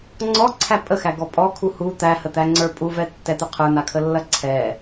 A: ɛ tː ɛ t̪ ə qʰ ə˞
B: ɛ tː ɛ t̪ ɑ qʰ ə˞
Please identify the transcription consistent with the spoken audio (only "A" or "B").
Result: A